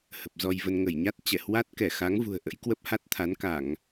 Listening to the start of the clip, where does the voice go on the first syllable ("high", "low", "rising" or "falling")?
low